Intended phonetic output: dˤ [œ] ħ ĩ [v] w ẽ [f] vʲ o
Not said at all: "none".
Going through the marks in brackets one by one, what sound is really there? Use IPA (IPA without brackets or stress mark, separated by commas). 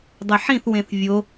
œ, θ, θ